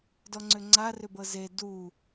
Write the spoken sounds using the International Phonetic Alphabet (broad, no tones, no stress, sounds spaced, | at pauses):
d ɔ ŋ͡ǀ ʏ ŋ͡ǀ a r ʏ b ɤ z e d u